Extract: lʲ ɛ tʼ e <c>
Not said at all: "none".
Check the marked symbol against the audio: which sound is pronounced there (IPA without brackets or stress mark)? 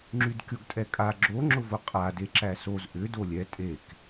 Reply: k